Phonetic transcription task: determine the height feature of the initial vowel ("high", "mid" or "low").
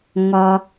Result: low